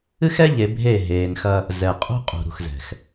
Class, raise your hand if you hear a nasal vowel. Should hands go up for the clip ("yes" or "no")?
no